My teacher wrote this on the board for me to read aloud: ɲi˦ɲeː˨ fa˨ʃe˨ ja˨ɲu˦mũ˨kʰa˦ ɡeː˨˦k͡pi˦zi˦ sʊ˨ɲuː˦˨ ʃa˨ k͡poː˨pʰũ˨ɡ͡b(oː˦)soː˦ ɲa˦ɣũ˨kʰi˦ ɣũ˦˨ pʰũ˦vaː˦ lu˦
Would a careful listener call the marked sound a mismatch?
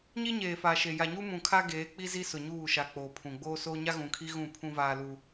no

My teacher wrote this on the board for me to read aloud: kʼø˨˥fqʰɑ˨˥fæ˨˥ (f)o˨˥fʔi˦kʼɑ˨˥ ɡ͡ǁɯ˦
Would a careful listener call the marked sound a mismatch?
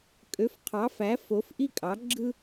no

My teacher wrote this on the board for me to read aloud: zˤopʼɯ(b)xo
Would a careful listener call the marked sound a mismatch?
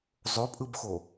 no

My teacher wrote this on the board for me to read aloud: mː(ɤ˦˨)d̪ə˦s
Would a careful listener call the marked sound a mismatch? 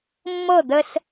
no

